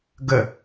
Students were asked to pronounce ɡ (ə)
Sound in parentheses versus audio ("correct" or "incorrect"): correct